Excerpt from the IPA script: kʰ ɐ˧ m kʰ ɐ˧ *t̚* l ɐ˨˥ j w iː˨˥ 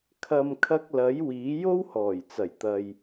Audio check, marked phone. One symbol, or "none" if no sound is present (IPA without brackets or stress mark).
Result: k̚